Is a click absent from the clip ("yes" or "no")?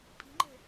no